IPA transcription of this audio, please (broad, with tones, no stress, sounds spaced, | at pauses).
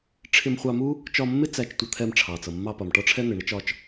ʈ͡ʂʰ ɪ˧ m χʷ ɑ˧ m u˥ | t͡ʃ ɒ˧ mː ɪ˥ t͡s æ˧ t͡ʃ tʷ ʌ˧ t̪ʰ ɛ˧ m ʈ͡ʂʰ ɑ˩ t͡s ʌ˩ mː ɑ˧ p ɒ˩ m ʈ ɒ˥ ʈ͡ʂʰ ɛ˥ n̪ ɪ˩ ɳ ɪ˥ t͡ʃ ɒ˧ t͡ʃ